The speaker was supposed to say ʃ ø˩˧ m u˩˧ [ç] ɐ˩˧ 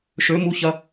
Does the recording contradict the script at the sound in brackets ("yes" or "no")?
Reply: no